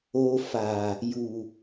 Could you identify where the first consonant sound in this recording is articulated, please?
labial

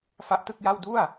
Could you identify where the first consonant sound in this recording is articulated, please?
labial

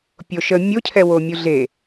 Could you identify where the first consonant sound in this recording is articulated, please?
labial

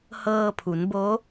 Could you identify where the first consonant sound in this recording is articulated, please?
glottal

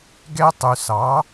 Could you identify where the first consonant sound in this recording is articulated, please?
velar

